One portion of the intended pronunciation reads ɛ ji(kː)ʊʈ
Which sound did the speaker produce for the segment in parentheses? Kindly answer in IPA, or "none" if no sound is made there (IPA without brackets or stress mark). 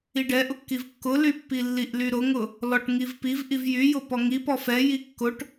kː